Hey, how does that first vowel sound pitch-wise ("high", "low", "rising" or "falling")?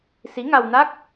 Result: rising